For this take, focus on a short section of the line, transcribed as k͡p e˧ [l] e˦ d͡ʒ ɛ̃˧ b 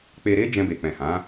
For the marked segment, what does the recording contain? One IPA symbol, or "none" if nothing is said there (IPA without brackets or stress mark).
ɾ